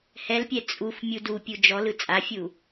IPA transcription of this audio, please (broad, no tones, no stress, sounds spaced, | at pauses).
h ɛ l pʲ ɛ t͡sʼ u f mʲ u d u pʲ u d͡ʒ ɔ l ɯ t͡sʼ a fʲ u